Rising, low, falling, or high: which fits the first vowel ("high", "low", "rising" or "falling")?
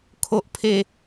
low